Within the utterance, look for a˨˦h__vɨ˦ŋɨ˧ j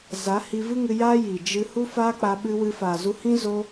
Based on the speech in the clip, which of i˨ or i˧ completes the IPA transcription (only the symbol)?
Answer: i˧